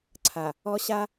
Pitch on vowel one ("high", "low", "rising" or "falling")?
low